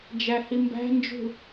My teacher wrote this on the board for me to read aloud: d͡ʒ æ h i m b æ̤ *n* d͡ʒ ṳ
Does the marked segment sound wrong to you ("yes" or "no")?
no